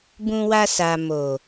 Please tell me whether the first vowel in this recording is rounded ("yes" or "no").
yes